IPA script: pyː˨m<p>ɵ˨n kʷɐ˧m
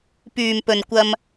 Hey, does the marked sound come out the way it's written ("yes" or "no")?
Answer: yes